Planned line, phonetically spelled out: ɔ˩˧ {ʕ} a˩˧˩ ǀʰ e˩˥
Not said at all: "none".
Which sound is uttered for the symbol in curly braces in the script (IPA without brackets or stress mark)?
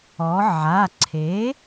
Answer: ʕ